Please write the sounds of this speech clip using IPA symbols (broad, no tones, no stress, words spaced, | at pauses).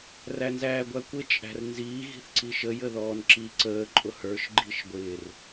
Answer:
rænzæːɡʷækʷɪ t͡ʃʼæ̤rnziː ɣi̤θǀiʃə jəðɔːnǁi ǀəː ǃʼʊhə˞ʃ ɡ͡ǃiʃɡʷɪːr